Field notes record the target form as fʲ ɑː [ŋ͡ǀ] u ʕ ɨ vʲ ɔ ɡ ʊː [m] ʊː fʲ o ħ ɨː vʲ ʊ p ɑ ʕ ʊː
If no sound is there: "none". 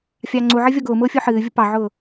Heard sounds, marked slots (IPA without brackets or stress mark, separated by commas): ŋ͡ǀ, m